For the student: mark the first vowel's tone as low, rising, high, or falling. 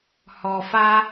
low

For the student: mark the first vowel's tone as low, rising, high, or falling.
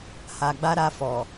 low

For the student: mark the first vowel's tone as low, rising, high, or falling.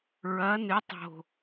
rising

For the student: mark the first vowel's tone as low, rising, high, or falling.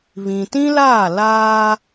low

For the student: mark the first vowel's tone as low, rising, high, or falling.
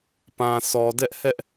low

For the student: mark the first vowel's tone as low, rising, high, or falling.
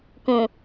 low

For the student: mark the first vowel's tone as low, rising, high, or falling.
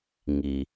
low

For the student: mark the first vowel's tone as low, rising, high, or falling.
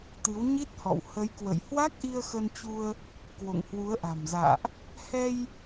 rising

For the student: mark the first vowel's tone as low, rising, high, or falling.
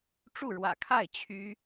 falling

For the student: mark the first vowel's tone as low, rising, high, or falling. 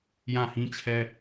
falling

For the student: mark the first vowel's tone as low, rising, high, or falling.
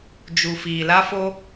low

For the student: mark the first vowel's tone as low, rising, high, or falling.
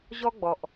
high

